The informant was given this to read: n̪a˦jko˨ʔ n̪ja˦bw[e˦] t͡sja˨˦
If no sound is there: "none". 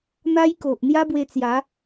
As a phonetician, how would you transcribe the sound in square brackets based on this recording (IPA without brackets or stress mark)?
e˧